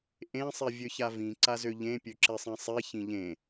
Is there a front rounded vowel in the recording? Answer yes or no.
yes